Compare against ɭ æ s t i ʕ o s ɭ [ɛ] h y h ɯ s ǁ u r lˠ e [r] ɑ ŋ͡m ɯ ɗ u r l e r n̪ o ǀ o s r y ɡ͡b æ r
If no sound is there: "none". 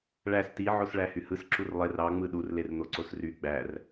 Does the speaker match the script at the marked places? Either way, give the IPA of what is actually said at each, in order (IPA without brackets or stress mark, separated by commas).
æ, r